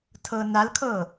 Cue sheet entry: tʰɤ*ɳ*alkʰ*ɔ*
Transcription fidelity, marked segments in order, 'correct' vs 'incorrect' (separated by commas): incorrect, incorrect